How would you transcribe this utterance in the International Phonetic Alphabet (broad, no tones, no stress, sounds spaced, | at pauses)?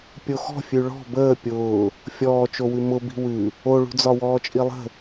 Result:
pʲ o x ɔ̤ fʲ ʉ ɭ ɔ̤ b əː pʲ ʊː | fʲ ɔː t͡ʃ o w ʉ m ʊ b i̤ w ʉ | o ɭ ṳ d͡z ɒ w ɔː t͡ʃʼ i lˠ ə̤